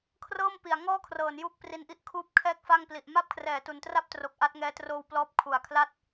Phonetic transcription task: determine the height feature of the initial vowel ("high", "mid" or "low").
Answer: mid